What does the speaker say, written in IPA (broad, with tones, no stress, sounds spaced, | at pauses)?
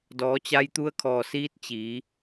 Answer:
d ɔː˩˧ t͡ɕ a˧ j t̪ u˧˥ ə̯ kʰ ɔː˧˩ s iː˧˥ t̚ t͡ɕ iː˩˧